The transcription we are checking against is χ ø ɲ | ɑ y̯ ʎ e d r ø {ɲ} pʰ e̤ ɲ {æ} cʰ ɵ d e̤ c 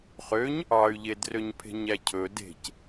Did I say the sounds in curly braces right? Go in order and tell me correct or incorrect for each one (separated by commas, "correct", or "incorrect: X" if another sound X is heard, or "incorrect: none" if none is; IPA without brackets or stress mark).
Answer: correct, correct